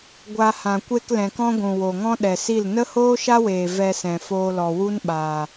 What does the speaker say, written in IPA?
ɡʷ a˧ h ã˨ kʷ e˧ k l ɛ̃˨ k ɔ̃˦ ɡʷ ũ˨ w o˨ ŋ ɔ̃˦ ɗ ɛ˨ s i˦˨ l n ə˦ h oː˦ ʃ a˦ w eː˨ v ɛ˧ s ɛ̃˨ f oː˧ l ɔ˨ w u˦ n ɓ aː˨

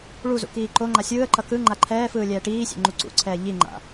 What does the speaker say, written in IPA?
ɭ u z ṵ k iː ǃ o ŋ͡ǃ a sʲ ɯː ə̯ ǃ ʌ k ɯ ŋ͡ǃ a ǃʰ ɛː f ɯː lʲ ɛː ʈ iː sʲ ḛ ŋ͡ǃ u ǀ ṵ ǀʰ ɛː ʎ i ŋ͡ǃ a̰

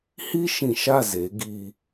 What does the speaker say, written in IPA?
h i˦ ʃ ĩ˨ ʃ a˦˨ z e˨˦ ɡ i˦

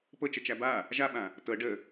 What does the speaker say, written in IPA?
p ɤ t͡ʃ ə t͡ʃ æ b a | ʒ a ɓ ã | t ɤ ɖ ə

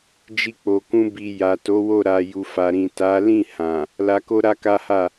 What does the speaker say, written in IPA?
d͡ʒ i˧ k͡p o˨ k ũ˧ b i˨ j a˨ t o˨˦ w o˦˨ ɾ a˨ j u˨ f a˨ ɾ ĩ˨ t a˨˦ l ĩ˦˨ h ã˨ | l a˧ k o˦ ɾ a˦ k a˦ h a˦˨

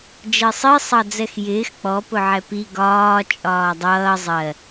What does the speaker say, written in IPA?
d͡ʒ ɜ sˤ i sˤ ɑ d͡z ɛ x j ɪː x k͡p ɔ p ʊ ʕ ɛ p i ɡ ɒː t͡ʃʼ ɒː dˤ ʌː zˤ ɜ

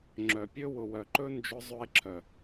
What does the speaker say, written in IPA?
ŋ͡ǁ œ˨ pʲ ɵ˦ w ʊ˨ w œ˨ ǃ ɵ˦ n d͡ʒ ʊ˧ zˤ ɵ˧ e̯ ǁʰ œ˨

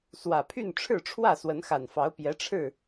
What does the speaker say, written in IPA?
s w ä˨˩ pʰ y˥˨ n ʈ͡ʂʰ ɻ̩˥˨ ʈ͡ʂʰ w ä˥˨ s w ə˨˦ n x a˨˩ n f ɑ˨˦ ʊ̯ p j ɛ˨˦ ʈ͡ʂʰ ɻ̩˥˨

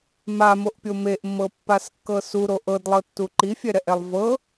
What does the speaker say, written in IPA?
m a m o ʔ pʲ o m e ʔ mː ɤ pː a s kː ɤ s u ɾ o ʔ ɤ d lˠ ɤ tː u ǃ i fʲ ɛ ɾ ɛ ʔ ɛ lˠ v ɤ

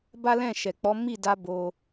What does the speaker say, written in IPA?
b a˦ l ɛ̃˦˨ ʃ ɛ˨ k͡p ɔ˨˦ m i˦˨ d a˧ b o˦

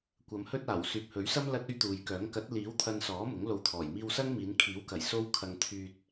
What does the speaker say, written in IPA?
kʷ ɐ˨˧ m h ɵ˥ t̚ aː˨˩ w s yː˨ p̚ h ɵ˨˥ ɥ s ɐ˥ m l ɐ˥ t̚ ɵ˥ ɥ t̪ uː˨ j k œː˨˥ ŋ k ɐ˨˥ t̚ l iː˨˥ w t̪ʰ ɐ˧ n s ɔː˨˥ m ʊ˨˥ ŋ l o˧ w t̪ʰ ɔː˨˩ j m iː˧ w s ɐ˥ ŋ m iː˨˧ n kʰ iː˨˥ w k ɐ˨˩ j s o˥ w kʰ ɐ˧ ŋ t̪ʰ yː˧ t̚

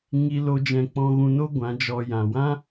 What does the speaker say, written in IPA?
ŋ i˦ l o˦ d͡ʒ ɛ̃˧ k͡p ɔ̃˧ ɣ ũ˧ n o˦ ɡʷ ã˨˦ d͡ʒ ɔ˧ j ã˨ w ã˦

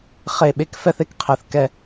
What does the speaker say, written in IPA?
χ e˦˨ ɓ e˥ k f ɛ˥ θ e˥ k qʰ ɛ˦˨ θ k ɛ˥

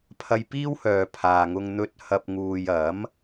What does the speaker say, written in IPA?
pʰ ɐ˧ j p iː˥ w h œː˨ pʰ aː˨ ŋ ʊ˧ ŋ n̪ ɵ˧ t̚ h ɐ˧ p̚ ŋ uː˨ j ɐ˨˥ m

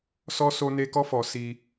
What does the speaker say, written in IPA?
s ɔ˦ s o˦ n e˦ k ɔ˦ f ɔ˧ s i˧

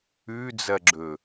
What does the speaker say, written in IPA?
ʉ d͡z ɐ ɡ͡ǁ ɵ

